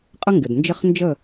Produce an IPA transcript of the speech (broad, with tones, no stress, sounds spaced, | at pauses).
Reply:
qʼ ə˦ ŋ ɡ ɪ˩ d n d͡ʒ ɪ˦˨ χ n d͡ʒ ə˦˨